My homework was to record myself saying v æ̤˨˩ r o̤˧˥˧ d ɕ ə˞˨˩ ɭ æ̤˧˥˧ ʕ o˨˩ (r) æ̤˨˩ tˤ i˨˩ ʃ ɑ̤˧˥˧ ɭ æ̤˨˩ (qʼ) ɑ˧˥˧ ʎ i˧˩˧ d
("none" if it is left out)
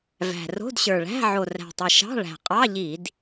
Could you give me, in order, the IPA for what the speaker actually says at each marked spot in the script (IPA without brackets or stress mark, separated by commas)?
r, qʼ